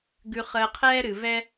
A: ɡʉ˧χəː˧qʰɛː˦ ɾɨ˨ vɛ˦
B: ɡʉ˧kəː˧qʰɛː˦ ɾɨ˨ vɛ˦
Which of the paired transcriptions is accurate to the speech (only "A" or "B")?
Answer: A